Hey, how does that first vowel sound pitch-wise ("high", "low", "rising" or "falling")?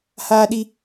high